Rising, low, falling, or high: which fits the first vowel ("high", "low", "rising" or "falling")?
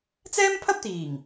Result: high